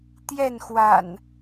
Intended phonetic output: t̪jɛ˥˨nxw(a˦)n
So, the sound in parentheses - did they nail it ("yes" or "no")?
no